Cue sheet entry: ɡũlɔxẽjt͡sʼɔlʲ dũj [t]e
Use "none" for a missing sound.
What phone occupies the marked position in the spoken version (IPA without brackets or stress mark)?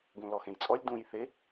θ